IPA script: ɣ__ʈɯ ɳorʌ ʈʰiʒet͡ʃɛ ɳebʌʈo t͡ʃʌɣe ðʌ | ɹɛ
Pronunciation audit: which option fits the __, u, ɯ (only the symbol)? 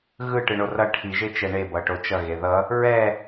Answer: ɯ